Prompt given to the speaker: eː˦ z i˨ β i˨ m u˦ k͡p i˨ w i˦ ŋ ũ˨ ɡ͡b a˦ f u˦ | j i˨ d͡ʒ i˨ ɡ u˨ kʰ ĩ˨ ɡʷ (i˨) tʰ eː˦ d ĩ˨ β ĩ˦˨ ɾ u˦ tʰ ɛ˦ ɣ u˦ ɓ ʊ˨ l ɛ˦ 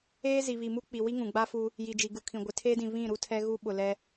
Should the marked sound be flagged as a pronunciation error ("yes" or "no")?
yes